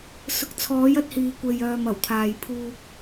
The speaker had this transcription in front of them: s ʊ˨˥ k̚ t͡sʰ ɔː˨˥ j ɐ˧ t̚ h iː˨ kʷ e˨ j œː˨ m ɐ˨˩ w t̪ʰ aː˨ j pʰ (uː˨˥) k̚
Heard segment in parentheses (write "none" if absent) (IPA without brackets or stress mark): uː˧